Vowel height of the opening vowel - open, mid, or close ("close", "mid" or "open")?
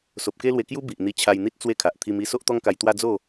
mid